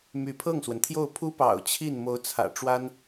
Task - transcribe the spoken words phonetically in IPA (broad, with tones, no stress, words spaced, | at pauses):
my˧˥pʰɤ˥˩ŋswə˩nt̪ʰjo˥˩ʊ̯ pʰu˥pɑ̰˨˩ʊ̯ t͡ɕʰi˥˩n mo˧˥ʊ̯t͡sʰä̰˨˩ʈ͡ʂwa˥n